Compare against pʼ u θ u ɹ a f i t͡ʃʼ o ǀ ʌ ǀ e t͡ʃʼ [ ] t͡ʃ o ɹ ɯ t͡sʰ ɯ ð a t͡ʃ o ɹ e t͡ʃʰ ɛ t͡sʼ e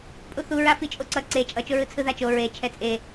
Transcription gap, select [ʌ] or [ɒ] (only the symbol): ʌ